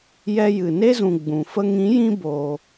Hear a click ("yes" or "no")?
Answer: no